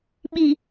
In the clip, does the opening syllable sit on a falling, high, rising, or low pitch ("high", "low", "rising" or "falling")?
low